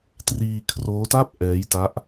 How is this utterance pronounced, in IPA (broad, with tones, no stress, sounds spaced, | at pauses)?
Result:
t r iː˧ kʰ r oː˦˥ t a˥˩ p̚ ʔ ɛː˦˥ j t a˦˥ ʔ